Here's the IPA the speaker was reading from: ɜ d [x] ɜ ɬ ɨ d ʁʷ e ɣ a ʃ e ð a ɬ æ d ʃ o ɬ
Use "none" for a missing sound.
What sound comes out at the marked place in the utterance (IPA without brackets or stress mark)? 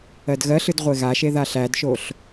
ɣ